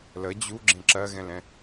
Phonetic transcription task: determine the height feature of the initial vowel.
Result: mid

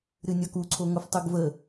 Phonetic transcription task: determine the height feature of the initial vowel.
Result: high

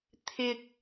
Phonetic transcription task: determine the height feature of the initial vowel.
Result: high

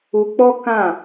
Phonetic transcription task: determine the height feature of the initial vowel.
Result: high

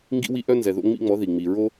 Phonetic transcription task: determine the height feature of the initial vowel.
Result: high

